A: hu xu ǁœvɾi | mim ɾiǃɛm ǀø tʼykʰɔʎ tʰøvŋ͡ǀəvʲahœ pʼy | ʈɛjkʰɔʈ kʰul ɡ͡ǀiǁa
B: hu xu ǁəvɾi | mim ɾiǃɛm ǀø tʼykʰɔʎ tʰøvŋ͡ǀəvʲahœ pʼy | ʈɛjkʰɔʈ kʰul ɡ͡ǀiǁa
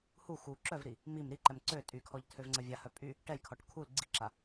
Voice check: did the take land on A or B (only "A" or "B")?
A